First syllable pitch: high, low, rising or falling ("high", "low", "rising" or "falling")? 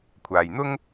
low